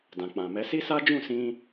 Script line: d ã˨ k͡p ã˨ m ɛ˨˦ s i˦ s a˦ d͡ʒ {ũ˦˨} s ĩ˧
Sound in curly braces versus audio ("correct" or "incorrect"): correct